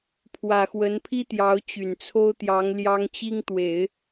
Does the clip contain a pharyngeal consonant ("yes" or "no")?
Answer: no